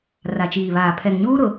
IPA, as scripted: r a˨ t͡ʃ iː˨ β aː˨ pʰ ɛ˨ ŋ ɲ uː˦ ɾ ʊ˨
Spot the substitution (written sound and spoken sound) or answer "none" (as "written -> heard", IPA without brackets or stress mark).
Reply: none